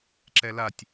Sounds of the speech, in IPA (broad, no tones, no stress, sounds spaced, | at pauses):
ǁ ɛ l a tʲ